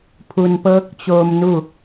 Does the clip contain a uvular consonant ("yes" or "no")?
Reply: no